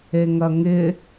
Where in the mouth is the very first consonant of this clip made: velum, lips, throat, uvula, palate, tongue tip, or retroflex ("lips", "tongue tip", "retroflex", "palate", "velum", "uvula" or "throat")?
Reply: velum